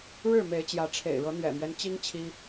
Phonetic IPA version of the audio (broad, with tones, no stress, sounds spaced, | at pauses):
ɻ ɻ̩˥˨ m e˨˦ ɪ̯ t͡ɕ j ä˨˦ ʈ͡ʂʰ ḛ˨˩ ɪ̯ ɻ ɤ˨˦ n̪ ɥ ɛ̰˨˩ m ɥ ɛ˦ n t͡ɕ i˦ ŋ t͡ɕʰ i˦